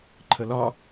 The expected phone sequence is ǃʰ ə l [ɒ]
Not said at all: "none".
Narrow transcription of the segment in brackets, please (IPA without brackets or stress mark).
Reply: ɒ